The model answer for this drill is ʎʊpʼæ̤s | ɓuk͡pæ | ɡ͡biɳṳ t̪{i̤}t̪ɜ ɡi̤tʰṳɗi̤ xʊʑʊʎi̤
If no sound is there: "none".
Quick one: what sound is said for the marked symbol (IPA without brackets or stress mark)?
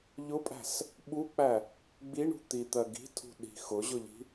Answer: i